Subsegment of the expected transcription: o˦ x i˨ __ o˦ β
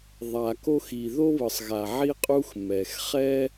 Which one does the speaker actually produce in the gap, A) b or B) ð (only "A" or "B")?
B